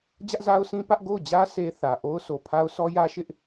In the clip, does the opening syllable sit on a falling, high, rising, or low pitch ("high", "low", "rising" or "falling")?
high